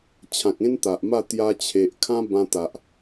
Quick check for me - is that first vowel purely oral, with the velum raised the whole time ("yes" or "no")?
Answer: no